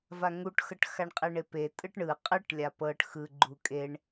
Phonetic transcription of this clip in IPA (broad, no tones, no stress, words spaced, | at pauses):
vaŋuʈxɤʈ xaɳqʼeɳepe tʼɯʈɳɯ qʼɯʈ lʲapɤʈ xɯ ɡ͡ǃukʼeɳ